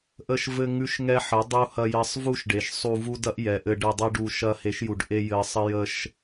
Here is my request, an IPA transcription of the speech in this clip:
ʔ ə˦ ʃ v ɘ˦ ŋ ʉ˦ ʃ ŋ ɛ˦ ħ ɘ˨˦ dˤ u˧ h ɐ˧ j ɐ˧ sˤ v u˦ ʃ ɖ e˨ ʃ sˤ u˧ v u˦ d ɐ˦ ʔ j ɛ˨ ʔ ɘ˧ ɖ ɛ˧ dˤ ɛ˦ ɖ u˧ ʃ ɐ˧ h e˨˦ ʃ j u˨ ɖ ʔ e˦ j ɘ˧ sˤ ə˦ j ə˧ ʃ

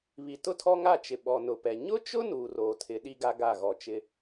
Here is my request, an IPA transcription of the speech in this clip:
β i˨ t ʊ˦ tʰ ɔ˦ ŋ a˦˨ t͡ʃ ɪ˨ ɓ ɔ˨ n ʊ˨ p ɛ˨ ɲ ʊ˦ t͡ʃ ʊ˦ n uː˨ r oː˨ tʰ ɪ˨˦ ɗ i˦ ɡ a˦ ɡ a˦˨ ɣ ɔ˨ t͡ʃ ɪ˦

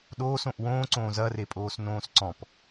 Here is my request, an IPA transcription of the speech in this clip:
ɗ oː s õ ʔ w õː ǀ õː z ɐ r e pʼ oː s n õː s ǀ ɔ̃ p

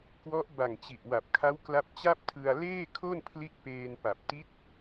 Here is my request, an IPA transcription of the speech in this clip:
k w ɔ˦˥ ʔ b a˨˩ ŋ t͡ɕ i˨˩ ʔ w a˨˩ p̚ kʰ a˦˥ w k l a˦˥ p̚ t͡ɕ a˥˩ p̚ tʰ ɯ˧ a̯ l eː˥˩ kʰ o˥˩ n pʰ l i˦˥ ʔ p eː˧ n p a˨˩ p̚ t i˦˥ t̚

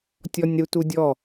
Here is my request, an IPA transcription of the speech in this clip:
tʲ ɔ nʲ ɾ u t u dʲ ɔ

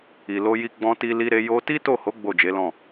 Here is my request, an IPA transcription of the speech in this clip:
i˨ l o˧ j i˧ ɡ͡b ɔ̃˧ t i˧ l i˧ ɾ e˧ j o˧ t i˦ t o˦˨ h o˨˦ ɡ͡b o˦˨ d͡ʒ e˨˦ l ɔ̃˦˨

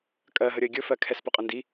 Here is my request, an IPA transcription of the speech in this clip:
kʼ ɜ ɦ ə ɾʲ ə ɪ̯ ɡʲ ɵ f ɜ kʰ ɛ s p ɵ qʼ ə n d i

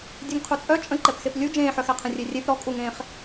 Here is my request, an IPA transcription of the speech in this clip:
dʲ œ ŋ qʰ u t͡sʼ œ t͡ʃʼ ə̃ ǃ ɛ p x e p lʲ u d͡ʒ ẽː ħ œ x ɛ qʰ ə̃ rʲ e rʲ e p ɾ ɔ kʼ u ŋ ẽː χ

